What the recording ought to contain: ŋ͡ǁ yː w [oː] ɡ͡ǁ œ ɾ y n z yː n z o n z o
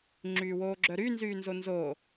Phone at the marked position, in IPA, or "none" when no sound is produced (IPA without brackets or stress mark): oː